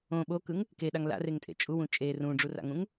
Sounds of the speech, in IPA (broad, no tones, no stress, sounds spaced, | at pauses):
õ ɓ o k ɯ ŋ | k e ɗ a ŋ l a̰ r e ŋ tʼ ḛ t͡ʃʼ u w ũ t͡ʃʼ e r ũ ɖ͡ʐ u r a̰ ŋ ũ ŋ